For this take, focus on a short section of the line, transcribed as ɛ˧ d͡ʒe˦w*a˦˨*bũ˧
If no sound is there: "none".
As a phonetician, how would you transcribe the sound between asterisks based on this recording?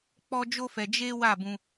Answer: a˦˨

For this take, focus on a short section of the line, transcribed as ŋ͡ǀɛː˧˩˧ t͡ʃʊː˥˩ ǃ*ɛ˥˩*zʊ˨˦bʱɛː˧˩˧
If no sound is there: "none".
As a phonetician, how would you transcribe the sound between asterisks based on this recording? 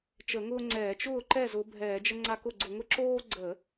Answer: ɛ˥˩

